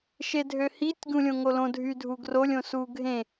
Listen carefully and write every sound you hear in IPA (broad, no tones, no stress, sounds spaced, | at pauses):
ʃ e dʱ ø h i tʲ ɡ ũ lʲ õ ŋ o l õ dʱ y dʱ u ɡ r o lʲ õ s u ɡʱ ẽ